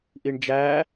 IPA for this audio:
ʔ i ɳ d͡ʒ æ

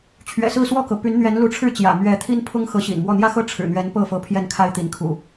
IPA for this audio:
t͡ɕʰ ɥ ɛ̰˨˩ s ɹ̩˥˨ s w ɔ˥˨ k ɤ˩ p y˨˦ n n̪ ɥ ɛ˨˦ n l u˨˦ ʈ͡ʂʰ ɻ̩˥˨ t͡ɕ j ä̰˨˩ m ɥ ɛ˨˦ t̪ʰ i˦ n pʰ ʊ˦ ŋ x ɤ˨˦ ɕ ḭ˨˩ n m w ɔ˥˨ n̪ j ä˦ x ɤ˥˨ ʈ͡ʂʰ ɻ̩˨˩ n̪ ɥ ɛ˨˦ n p ɤ˥˨ f ɤ˨˦ pʰ j ɛ˥˨ n kʰ a˦ ɪ̯ t̪ i˨˦ n kʰ ṵ˨˩

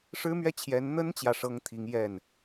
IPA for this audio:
ʂ ɻ̩˥ m ɥ ɛ˥˩ t͡ɕʰ j ɛ˧˥ n n̪ ə˥ n t͡ɕ j ä˥˩ ʂ ɤ˥ ŋ t̪ʰ i˧˥ ŋ j ɛ˥˩ n

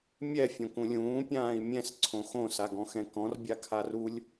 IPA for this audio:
mʲ ɛ fʲ õ k ũ lʲ ũː pʲ ãː i̯ mʲ ɛ̃ s ǀʰ õ x õ s a ɡ ɔ̃ x ɛ̃ k ɔ̃ r bʲ a kʰ a r u lʲ

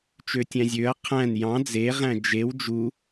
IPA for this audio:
t͡ʃ ø tʲ æ̃ zʲ ø ɐ̯ qʰ æ̃ n j ɑ̃ d͡z e ʁ æ̃ d͡ʒ e w d͡ʒ u

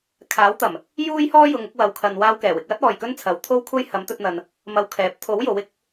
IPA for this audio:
kʰ aː˨˥ w t̪ ɐ˨˩ m | j uː˥ j h ɔː˥ j ʊ˨ ŋ ʊ˥ k̚ w ɐ˧ w kʰ ɐ˧ n w aː˧ w k ɛː˨˩ w ɪ˨ k̚ w ɐ˥ t̚ ɔː˨ j k ɵ˥ n t͡sʰ ɐ˨˥ w t̪ʰ o˥ w kʷʰ ɐ˥ j h ɐ˨˥ m t̪ ɵ˧ t̚ n̪ ɐ˨ n | m ɐ˧ w kʰ ɛː˨˥ p̚ t̪ʰ o˨˥ w j o˨˥ w ɪ˨˥ k̚

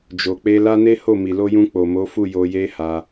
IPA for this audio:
d͡ʒ o˨ k͡p e˧ l a˦ n e˦ h o˦˨ m i˨ l o˧ j ũ˧ k͡p o˨ m o˨˦ f u˦˨ j o˧ j e˦ h a˧

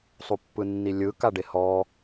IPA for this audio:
sˤ u pː ɯ nː i lʲ ɯ k a ɖ e h ɔ

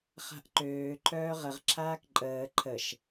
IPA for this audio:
χ a̤ ʔ ǃ øː ǃʰ œː ʁ ə ʁ ǁʰ aː k ǃʼ əː ǃʰ ə ʃ

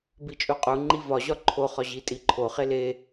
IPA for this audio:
b i t͡ʃʼ u qʼ u ŋ͡ǃ i v ɒ ʑ ɒ ǃʰ o χ ɒ ʑ i tʼ i ǃʰ o χ e l e

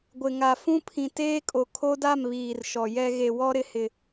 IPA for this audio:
ɡʷ ɪ˨ ŋ a˨ f ũ˦ pʰ ĩ˨ t eː˦ kʼ o˨ kʰ o˦ d a˦˨ m β iː˨ r ʃ ɔ˨ j ɛ˦ ɣ e˨ w ɔ˦ ɾ ɪ˨ h ɪ˨

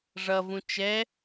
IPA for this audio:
ʐ ʌ v ũ t͡ʃ ɛ

